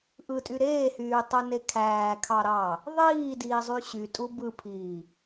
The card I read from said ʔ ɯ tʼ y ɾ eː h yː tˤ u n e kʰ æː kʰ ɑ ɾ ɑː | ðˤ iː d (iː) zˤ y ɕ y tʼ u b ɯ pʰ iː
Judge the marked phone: correct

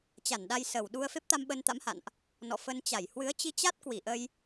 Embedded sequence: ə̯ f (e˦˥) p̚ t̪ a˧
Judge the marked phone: correct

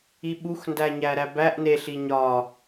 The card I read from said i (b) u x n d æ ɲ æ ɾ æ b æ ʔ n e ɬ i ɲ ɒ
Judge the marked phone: incorrect: ɓ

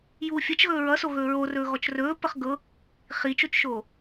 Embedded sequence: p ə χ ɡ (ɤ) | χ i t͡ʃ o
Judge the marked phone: correct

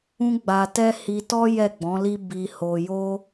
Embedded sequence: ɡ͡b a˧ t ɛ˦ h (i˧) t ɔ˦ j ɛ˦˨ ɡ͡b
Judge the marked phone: correct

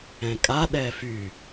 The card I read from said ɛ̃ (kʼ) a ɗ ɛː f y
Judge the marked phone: correct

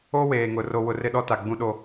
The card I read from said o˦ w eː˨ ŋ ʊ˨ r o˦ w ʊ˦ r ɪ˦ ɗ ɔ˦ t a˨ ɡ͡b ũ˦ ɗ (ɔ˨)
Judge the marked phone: incorrect: o˨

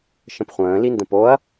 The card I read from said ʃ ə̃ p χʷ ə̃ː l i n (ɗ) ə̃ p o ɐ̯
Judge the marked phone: incorrect: d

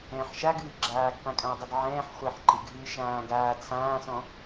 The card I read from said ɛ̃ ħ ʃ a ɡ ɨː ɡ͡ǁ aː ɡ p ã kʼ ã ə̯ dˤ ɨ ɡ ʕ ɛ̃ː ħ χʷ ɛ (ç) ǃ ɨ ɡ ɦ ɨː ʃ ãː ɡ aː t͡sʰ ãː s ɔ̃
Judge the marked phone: incorrect: ħ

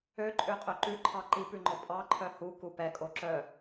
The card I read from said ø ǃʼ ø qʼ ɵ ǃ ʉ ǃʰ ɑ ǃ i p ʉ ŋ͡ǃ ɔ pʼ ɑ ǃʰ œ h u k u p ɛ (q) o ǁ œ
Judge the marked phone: incorrect: kʼ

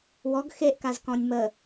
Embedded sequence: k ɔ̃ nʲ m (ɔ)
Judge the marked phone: incorrect: ə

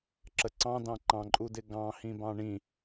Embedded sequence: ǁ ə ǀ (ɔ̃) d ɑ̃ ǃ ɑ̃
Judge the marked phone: incorrect: ɑ̃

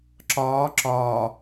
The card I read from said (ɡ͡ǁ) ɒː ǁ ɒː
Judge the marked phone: incorrect: ǁ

